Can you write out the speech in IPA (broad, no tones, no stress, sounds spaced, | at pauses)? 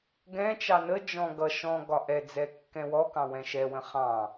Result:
ɡ ɛ̃ t͡ʃ ɑ n ə d͡ʒ ɔ̃ ɡ ʌ ʃ ɔ̃ ɡ ɒ ʔ ɛ d͡z ɛ kː ɛ̃ w ɔ k ɑ̃ w ɛ̃ ʃ ɛ w ə̃ χ ɑ̃